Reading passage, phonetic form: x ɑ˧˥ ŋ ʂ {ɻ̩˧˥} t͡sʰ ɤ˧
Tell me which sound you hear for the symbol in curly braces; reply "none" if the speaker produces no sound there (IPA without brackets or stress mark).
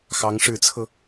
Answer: ɻ̩˧˥